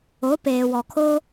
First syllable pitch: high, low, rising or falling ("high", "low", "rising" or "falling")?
rising